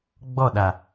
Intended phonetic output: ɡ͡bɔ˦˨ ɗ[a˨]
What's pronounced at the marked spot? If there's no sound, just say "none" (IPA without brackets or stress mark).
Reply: a˨